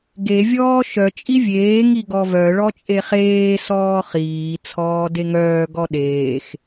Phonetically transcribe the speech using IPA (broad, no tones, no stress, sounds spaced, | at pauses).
ɡ e vʲ ɔː ʃ œ t͡ʃʼ i vʲ eː ŋ i ɡ ɔ v œ ɭ ɔ t͡ʃʼ e χ eː s ɔː χ iː t͡sʰ ɔː d e ŋ œː ɡ ɔ ɗ eː x